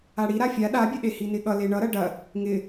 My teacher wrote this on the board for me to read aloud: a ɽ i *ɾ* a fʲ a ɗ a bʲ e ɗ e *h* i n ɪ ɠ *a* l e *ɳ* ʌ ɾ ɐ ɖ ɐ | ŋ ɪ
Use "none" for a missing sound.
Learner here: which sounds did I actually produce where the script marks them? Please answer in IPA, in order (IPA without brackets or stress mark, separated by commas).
ɾ, h, ʌ, ɳ